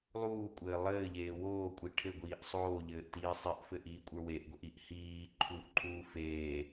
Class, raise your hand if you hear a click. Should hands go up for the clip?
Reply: yes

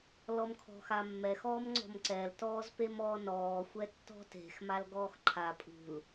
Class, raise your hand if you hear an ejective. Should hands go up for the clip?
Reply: yes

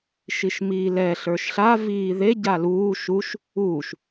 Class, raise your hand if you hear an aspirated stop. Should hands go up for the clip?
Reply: no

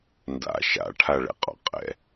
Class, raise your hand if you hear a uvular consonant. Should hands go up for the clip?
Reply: yes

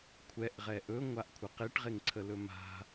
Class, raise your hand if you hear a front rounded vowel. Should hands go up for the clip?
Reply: no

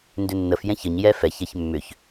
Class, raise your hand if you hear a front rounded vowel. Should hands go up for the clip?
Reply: yes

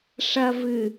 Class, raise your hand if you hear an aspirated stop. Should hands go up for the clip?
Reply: no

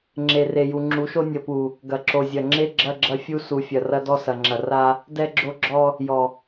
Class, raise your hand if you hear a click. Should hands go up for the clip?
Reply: yes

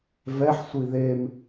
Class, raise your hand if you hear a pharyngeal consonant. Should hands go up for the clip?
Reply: yes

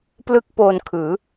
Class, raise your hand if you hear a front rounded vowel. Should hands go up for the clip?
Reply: no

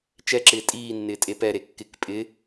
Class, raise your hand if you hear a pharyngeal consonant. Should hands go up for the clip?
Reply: no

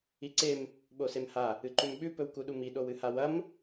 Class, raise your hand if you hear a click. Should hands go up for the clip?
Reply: yes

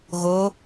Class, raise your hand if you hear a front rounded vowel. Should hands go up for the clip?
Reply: no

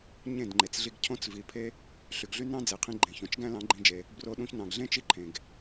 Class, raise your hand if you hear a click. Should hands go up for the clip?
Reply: yes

